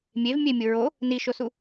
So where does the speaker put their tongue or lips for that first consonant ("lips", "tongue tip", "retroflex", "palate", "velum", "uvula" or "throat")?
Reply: lips